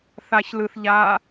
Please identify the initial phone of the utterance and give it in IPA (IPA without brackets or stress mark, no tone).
θ